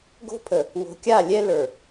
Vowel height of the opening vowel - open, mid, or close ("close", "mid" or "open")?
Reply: mid